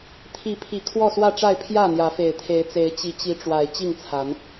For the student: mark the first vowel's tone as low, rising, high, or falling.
rising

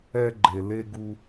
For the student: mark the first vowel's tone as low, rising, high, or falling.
high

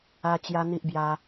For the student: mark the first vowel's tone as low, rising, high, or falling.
high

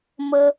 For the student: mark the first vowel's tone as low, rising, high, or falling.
high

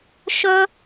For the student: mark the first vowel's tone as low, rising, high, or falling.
high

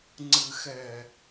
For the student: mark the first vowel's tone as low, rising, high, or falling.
low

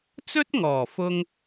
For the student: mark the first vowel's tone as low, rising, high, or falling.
high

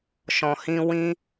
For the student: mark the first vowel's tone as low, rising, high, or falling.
low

